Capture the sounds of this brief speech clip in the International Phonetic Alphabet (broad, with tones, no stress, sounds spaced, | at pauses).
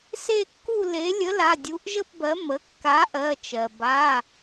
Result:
s e˥˧ kː u˥˧ l e˨˥ lʲ ə˨˥ l a˩˧˩ dʲ u˨˥ ʔ ʒ ə˥˧ p b ɜ˨˥ m ə˩˧˩ kː a˨˥ ʔ ɜ˩˧˩ t͡ʃ ɜ˩ b a˩˧˩